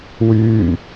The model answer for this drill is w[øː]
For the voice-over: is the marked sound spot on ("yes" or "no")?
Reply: no